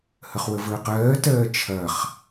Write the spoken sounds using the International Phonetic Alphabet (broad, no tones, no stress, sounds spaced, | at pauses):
h ə χ w ə v əː q ɜː t ɜː t͡ʃʰ ɐ χ